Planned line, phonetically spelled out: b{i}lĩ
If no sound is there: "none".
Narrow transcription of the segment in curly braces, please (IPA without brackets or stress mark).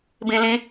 ĩ